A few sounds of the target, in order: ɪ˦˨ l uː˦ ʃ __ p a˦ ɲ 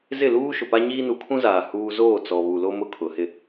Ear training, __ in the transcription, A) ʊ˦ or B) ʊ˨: B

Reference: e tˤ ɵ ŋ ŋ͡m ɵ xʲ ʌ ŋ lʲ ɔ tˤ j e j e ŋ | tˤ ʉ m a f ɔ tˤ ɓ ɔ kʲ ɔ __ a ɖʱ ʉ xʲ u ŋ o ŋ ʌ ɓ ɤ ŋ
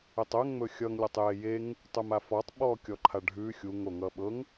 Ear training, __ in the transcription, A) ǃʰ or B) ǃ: A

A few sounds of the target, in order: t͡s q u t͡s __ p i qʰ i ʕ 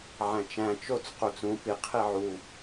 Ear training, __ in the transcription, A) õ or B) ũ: B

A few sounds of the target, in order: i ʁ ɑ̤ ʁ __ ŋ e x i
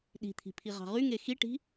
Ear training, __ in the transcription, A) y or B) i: A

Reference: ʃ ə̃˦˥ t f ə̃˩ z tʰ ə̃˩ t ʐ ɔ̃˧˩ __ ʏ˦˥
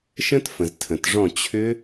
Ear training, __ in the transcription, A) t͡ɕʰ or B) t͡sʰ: A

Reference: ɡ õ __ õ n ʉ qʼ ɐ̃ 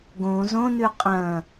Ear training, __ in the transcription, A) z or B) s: A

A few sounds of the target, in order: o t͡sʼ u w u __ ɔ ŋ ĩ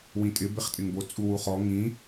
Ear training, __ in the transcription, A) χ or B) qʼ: A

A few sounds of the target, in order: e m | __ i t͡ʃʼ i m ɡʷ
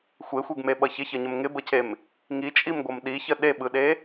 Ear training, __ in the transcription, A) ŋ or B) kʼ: A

